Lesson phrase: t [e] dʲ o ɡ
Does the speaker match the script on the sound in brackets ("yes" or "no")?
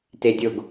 yes